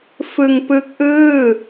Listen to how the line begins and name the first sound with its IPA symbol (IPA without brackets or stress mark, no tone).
f